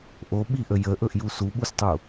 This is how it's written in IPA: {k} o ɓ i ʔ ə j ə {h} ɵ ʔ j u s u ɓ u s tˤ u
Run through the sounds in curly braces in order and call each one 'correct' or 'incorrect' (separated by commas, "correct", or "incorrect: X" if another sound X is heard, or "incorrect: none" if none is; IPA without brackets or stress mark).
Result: incorrect: ʔ, incorrect: ʔ